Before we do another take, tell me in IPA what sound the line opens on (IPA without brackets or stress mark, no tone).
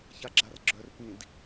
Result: ç